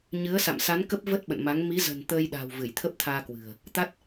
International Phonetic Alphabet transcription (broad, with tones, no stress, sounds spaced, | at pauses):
ɲ ɨ˨˦ ə̯ s a̰˧˨ m s a˨˦ n k ə˦˥ p̚ v ə˦˥ t̚ ɓ ə̰˧˨ n m a˨˦ ŋ m i˨˦ z ə̤˨˩ n t̪ əː˧ j ɗ a̤˨˩ w v ɨ˧˩ j t̪ʰ ə˦˥ p̚ t̪ʰ aː˧ k w ɨ̤˨˩ ə̯ | t̪ a˦˥ t̚